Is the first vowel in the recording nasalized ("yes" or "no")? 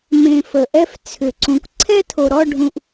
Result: yes